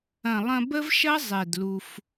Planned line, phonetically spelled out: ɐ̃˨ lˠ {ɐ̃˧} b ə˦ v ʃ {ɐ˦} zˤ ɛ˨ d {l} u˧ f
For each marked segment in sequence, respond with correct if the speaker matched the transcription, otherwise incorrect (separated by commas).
correct, correct, correct